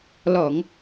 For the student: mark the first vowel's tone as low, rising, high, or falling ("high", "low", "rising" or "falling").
low